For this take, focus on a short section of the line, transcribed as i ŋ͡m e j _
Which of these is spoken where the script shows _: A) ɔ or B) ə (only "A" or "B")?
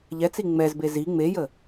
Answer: B